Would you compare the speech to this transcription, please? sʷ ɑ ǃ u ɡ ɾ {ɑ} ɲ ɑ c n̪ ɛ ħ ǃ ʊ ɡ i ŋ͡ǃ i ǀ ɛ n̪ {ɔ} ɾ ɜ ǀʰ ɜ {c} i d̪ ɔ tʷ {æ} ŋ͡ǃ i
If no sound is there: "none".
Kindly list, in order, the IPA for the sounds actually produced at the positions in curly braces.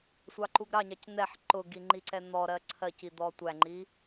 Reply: ɑ, ɔ, c, æ

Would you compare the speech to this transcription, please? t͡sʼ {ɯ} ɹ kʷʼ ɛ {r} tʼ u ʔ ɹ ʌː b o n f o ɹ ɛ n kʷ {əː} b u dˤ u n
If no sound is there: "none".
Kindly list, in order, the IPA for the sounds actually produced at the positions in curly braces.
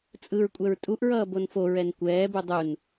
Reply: ɯ, ɹ, ɛː

